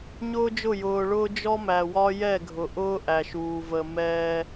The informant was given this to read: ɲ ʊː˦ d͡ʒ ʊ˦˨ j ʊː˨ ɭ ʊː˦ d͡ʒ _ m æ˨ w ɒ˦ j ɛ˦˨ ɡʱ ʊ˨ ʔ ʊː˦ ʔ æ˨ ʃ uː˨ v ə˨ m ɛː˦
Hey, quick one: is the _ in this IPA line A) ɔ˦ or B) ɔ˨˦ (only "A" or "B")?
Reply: A